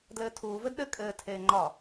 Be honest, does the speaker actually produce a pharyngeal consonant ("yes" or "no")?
no